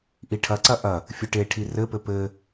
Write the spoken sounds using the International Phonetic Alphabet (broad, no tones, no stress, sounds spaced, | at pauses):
ʔ i ʈʰ ɐ ǀ ɐ ʔ ɐ | fʲ ɘ ʈ e ʈʰ i r ɘ p ɘ p ɘ